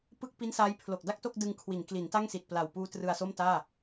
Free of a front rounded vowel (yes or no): yes